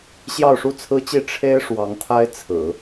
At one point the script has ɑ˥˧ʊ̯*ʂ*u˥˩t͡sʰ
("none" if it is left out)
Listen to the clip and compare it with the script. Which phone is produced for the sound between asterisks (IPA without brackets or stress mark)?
ʂ